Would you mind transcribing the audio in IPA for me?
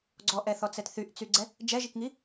ɡ͡ǀ ɔ ʔ ɛ θ ɔ t͡s ɛ t θ y ʔ t͡s y ɡ͡ǀ ɛ | d͡ʒ ɛ ʒ i k ŋ i

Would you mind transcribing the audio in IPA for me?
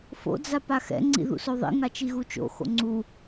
f o̰ d͡z a p a x ɛ̰ ŋ͡ǀ ḭ ð ṵ s o ðˤ ḭ ŋ a t͡ʃ i ɣ u t͡ʃ o̰ x o̰ ŋ͡ǀ u

